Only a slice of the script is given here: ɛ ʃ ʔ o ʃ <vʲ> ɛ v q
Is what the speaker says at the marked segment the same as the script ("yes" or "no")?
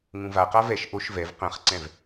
no